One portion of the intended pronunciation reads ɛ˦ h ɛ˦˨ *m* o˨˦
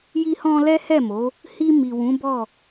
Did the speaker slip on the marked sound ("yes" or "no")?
no